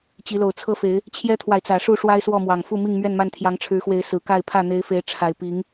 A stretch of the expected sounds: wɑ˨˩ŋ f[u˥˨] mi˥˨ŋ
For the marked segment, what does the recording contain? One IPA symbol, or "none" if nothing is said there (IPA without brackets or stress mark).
u˥˨